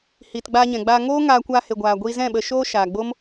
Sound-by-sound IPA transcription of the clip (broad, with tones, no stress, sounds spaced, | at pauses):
h iː˨ t ɡ͡b aː˧ ɲ ɛ̃˨ ɡ͡b aː˧ ŋ oː˦ ŋ aː˧ kʷ aː˧ h e˨ ɡʷ aː˨ ɡʷ iː˧ z ɛ̃˦˨ ɓ ə˧ ʃ oː˦ ʃ aː˨ ɡ͡b o˦ m